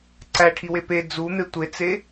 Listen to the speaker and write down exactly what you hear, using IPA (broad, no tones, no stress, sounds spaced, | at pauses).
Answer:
ǀ æ ʈʰ i w e p e d͡z u n̪ e tʷ e t͡s e